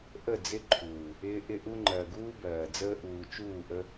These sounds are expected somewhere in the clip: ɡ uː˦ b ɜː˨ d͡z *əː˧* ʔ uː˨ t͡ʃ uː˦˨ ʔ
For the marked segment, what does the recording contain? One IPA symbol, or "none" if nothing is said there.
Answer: əː˧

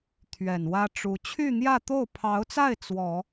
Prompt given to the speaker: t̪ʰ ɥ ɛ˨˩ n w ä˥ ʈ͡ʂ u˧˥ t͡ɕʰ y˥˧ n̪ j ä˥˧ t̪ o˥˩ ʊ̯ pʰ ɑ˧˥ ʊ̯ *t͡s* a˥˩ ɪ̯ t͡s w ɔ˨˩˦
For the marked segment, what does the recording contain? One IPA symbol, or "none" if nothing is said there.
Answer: t͡s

